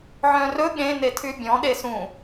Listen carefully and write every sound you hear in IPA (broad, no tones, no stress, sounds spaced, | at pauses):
ʕ œ̃ r ɵ ɠ ẽ n e tʰ y bʲ ɔ̃ ɗ e s ũ